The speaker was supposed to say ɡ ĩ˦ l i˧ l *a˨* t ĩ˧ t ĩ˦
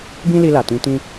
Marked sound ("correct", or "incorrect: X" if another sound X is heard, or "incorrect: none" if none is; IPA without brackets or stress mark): correct